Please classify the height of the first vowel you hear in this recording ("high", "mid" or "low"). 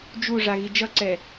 high